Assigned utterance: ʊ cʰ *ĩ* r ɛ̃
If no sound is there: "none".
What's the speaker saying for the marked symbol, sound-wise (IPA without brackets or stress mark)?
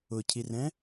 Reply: i